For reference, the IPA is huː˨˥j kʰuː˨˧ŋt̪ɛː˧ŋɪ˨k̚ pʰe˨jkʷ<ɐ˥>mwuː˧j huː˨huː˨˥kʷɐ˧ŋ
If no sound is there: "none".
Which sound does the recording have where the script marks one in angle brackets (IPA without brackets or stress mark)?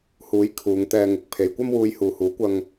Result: ɐ˥